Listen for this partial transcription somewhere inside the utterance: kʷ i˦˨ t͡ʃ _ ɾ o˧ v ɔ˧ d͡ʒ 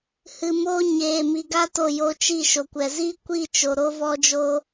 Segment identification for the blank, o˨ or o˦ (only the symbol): o˨